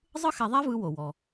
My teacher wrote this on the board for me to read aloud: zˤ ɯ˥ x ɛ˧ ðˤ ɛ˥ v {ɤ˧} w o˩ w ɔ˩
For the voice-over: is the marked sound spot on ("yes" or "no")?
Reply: no